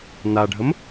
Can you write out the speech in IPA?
n a ɖʱ ə m

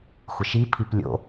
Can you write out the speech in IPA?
xʷ ɪ ʃ i pʰ i p lʲ o̰

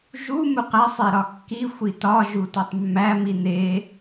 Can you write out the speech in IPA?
ʒ u m u q æ sˤ e ɾ ɒ kː i xʷ i t ɒ ʒ u t o tˤ mː æ m i n e

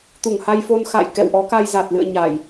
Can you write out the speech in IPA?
t̪ u˧˩ ŋ h a˧ j f o˧ n x a̰ː˧˨ j k ɛ̰˧˨ w ʔ ɔ˨˦ k a˧ j z a˨˩ t̚ l ɨ̰˧˨ ə̯ ɲ a˧˩˨ j

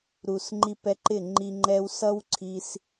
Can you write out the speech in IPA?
ɾ u˨ s ŋ͡ǃ i˧ p ɛ˧ ǃ ɪ˦˨ ŋ͡ǃ i˧ ŋ͡ǃ ɛ˦ w s ʌ˦ w ǀʰ i˧ s

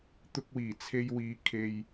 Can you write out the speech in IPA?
t̪ ʊ˧ k̚ w iː˨˩ t͡sʰ e˧ j w iː˨˧ kʰ e˨ j

